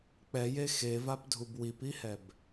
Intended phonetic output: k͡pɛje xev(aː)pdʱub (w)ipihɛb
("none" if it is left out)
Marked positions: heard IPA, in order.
a, w

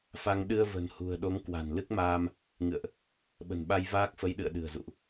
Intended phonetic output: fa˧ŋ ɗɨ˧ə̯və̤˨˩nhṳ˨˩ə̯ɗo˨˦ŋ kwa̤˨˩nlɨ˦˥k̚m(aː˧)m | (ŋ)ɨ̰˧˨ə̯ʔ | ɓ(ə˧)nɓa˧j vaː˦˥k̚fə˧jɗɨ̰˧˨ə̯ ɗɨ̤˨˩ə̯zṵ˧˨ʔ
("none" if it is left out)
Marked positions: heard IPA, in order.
aː˧, ŋ, ə̤˨˩

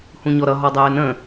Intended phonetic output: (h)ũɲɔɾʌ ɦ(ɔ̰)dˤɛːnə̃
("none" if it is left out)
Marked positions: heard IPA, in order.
h, ɔ

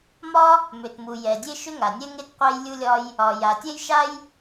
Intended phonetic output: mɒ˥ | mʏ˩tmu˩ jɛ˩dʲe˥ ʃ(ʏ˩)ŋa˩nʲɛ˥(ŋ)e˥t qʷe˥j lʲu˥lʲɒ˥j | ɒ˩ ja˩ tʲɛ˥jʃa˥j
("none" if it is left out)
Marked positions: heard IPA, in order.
ʏ˥, ŋ

